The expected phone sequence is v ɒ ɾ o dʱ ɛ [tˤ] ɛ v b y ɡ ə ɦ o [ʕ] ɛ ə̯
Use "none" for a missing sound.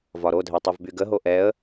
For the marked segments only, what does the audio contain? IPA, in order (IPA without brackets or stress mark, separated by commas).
tˤ, ʔ